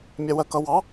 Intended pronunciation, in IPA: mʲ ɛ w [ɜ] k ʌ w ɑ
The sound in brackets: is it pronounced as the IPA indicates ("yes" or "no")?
yes